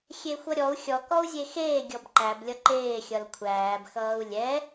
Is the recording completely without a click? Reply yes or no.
no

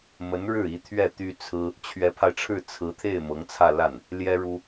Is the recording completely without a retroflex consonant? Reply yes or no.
no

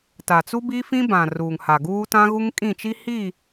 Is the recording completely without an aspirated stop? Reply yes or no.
yes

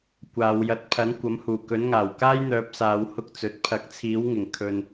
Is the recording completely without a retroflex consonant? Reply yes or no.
yes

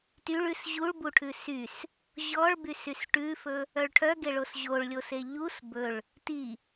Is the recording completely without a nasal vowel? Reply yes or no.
yes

